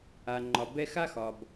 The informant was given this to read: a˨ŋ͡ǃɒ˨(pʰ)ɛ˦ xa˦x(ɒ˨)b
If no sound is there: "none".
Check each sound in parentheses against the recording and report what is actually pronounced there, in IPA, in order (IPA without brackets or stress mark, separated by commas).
b, ɒ˨